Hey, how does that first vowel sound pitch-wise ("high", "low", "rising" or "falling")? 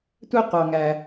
high